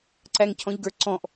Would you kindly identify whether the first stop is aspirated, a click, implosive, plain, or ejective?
click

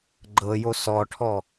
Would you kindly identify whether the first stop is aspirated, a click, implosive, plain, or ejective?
click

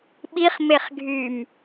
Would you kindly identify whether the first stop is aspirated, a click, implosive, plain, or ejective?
implosive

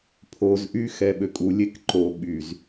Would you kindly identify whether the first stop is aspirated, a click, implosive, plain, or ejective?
aspirated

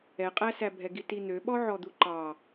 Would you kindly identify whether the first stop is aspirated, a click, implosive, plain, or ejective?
ejective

